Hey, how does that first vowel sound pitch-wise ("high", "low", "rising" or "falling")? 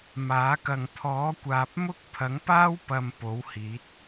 rising